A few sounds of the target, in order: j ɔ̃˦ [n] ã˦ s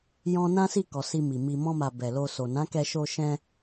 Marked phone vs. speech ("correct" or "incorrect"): correct